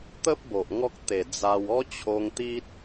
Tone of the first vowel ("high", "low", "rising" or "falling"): high